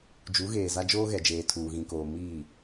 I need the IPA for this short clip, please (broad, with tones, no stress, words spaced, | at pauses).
d͡ʒu˨˦ɣeː˨za˦ d͡ʒoː˦ɣɛ˨d͡ʒeː˨ tʰuː˨ɣĩ˨koː˨ miː˦˨